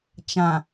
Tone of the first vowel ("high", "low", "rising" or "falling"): low